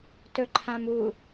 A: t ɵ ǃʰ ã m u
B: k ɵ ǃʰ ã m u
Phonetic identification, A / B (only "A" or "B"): A